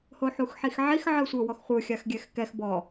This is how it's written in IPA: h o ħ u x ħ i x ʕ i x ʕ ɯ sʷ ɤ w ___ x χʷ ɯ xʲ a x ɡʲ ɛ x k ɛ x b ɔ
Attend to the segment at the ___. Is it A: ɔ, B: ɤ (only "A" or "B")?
A